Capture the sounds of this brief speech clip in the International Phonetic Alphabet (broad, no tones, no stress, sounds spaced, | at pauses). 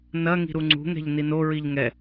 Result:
n ɐ ŋ i̤ ɾ u ŋ͡ǀ ṳ ŋ ɛ̤ ʎ n i n o ɹ i ʎ ŋ ɛ